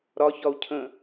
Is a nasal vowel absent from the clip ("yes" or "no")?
no